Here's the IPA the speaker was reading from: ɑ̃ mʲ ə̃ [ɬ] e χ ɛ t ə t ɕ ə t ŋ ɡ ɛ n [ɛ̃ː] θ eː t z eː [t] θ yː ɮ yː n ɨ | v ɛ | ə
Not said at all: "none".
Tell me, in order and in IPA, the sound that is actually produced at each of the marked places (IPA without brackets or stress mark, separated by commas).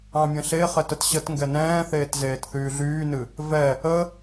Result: ɬ, ɛ̃ː, t